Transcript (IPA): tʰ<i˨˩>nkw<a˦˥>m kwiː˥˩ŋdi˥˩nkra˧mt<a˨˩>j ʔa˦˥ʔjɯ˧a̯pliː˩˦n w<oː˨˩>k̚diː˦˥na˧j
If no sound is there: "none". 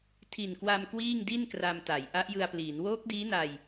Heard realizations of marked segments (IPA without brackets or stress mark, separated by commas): i˨˩, a˧, a˩˦, oː˦˥